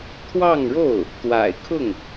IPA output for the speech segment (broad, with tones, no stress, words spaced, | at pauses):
t̪ʰwɑ˥˧ŋɻo˥˩ʊ̯ | t̪wa̰˨˩ɪ̯kʰʊ˥˩ŋ